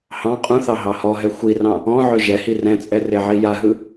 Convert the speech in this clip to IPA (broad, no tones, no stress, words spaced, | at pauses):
hɑ̃ qʼũθɑ ɦɑhɔɦɛ xʷirɑ̃ | ɔ̃ʕɵ ʒɛhi rɛ̃t͡sʼɛ reʕijaɦɯ